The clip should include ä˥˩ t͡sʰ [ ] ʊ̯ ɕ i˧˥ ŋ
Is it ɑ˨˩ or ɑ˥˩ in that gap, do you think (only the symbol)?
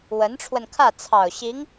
ɑ˨˩